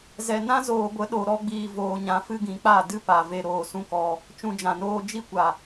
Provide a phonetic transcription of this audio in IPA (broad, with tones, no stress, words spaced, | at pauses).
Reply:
zɛ˨nã˦zoː˨ɡʷə˨˦ ɗo˨ɾɔ˧ ɡ͡biː˨voː˨ɲã˨ fɨ˦ɡĩ˨˦k͡pa˦˨ dɨ˦pa˨ ve˧ɾoː˨sũ˦kɔ˧ | t͡ʃũ˧d͡ʒã˨noː˦ d͡ʒi˦kʷa˨